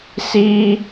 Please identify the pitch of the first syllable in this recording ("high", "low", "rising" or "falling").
high